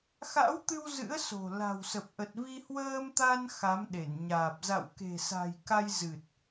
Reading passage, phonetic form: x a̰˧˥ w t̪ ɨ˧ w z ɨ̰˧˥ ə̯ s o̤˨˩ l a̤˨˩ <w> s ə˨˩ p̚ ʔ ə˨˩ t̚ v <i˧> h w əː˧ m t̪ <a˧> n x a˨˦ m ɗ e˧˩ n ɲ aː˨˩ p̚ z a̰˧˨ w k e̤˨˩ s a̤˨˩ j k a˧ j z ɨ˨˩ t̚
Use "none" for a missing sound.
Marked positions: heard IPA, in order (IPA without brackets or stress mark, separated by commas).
w, i˧, a˧